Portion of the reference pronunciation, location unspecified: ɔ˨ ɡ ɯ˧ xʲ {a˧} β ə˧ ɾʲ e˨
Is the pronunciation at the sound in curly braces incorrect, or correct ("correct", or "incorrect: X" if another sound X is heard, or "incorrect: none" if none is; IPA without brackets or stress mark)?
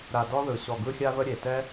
correct